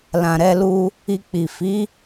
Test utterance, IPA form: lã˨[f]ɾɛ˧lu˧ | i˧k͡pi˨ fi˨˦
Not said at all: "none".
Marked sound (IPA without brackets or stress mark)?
none